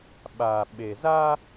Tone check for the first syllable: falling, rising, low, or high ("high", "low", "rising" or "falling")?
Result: low